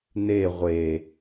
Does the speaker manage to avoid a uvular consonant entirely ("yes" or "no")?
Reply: no